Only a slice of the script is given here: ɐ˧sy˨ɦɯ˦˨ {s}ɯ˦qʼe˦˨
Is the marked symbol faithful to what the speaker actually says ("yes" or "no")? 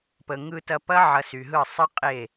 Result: no